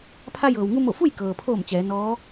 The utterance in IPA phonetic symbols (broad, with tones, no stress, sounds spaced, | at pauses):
pʰ a˧ j ɤː˩ w ŋ u˧ m o˧˩ f u˥˨ j k ɤː˩ pʰ oː˧˩ m t͡ɕ ɛː˩˧ n ɔː˧˥